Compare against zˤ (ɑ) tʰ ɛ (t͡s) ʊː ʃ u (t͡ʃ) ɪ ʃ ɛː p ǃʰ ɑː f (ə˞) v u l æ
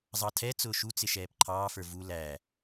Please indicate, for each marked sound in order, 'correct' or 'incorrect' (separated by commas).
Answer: correct, correct, incorrect, correct